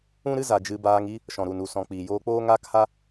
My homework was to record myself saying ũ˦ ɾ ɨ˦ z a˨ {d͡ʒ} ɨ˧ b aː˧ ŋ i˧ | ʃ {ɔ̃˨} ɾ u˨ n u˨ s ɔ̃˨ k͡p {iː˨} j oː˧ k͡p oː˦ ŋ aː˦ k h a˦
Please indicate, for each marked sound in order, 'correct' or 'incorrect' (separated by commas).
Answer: correct, correct, correct